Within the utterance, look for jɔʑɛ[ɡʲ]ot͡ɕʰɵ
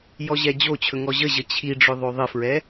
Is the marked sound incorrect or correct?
incorrect